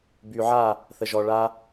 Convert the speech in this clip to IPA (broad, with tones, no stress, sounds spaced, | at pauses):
b y˨ ʕ a˦˨ | θ ə˨ ʒ ɔ˨ ɭ a˧